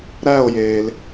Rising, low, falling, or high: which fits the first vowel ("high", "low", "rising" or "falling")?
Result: falling